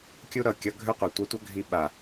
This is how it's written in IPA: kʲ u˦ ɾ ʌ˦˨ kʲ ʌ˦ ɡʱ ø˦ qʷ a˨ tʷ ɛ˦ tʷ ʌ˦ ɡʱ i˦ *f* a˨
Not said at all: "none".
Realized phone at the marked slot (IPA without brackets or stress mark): ɓ